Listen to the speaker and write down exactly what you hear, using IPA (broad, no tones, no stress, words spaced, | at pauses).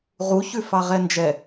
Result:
ʁu çʉfɑʁɛnd͡ʒɛ